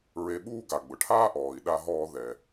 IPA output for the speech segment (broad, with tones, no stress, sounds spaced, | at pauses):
ɹ e˧ ɓ uː˥ ɡ a˩ ɡ͡b ʊ˩ ʈʰ aː˥ ʔ ɔː˩ i̯ ɗ a˧ ɦ ɔː˧ ð ɛ˩